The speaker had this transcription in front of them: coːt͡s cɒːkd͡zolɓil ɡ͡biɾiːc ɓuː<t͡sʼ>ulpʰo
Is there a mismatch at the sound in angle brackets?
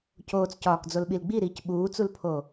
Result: yes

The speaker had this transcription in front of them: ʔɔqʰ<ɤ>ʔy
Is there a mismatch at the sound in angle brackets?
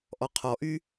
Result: yes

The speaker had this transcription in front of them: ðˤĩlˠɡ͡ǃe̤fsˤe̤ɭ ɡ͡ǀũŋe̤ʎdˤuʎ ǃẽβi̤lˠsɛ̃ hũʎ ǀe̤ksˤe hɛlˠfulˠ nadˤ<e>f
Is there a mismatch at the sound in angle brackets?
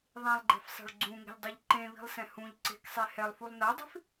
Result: yes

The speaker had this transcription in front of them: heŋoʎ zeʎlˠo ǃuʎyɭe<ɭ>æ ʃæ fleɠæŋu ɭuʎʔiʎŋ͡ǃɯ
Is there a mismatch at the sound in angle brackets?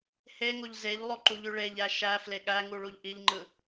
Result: yes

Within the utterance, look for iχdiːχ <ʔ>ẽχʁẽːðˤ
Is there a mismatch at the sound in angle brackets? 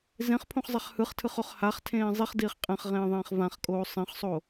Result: yes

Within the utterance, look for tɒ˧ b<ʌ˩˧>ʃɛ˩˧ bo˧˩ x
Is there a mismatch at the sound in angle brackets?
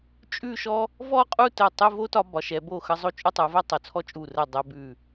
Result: yes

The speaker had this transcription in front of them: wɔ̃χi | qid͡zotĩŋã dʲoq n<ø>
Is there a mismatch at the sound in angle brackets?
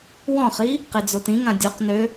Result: no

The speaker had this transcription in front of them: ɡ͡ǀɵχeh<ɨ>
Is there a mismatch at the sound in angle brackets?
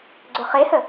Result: yes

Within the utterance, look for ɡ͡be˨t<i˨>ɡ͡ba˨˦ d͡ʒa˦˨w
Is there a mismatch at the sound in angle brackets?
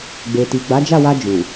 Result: no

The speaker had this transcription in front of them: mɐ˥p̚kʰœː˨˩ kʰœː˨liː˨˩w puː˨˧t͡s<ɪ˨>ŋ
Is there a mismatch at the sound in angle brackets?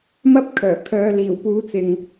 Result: no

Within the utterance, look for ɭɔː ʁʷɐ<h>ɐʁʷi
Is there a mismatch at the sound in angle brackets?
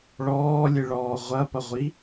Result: yes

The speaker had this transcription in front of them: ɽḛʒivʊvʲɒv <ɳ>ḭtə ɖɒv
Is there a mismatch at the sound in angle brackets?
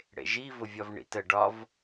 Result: no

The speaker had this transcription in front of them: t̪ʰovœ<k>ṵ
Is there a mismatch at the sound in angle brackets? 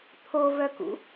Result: no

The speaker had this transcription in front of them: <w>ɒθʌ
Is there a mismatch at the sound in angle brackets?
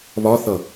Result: yes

